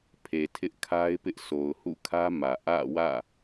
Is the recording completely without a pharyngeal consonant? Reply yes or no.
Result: yes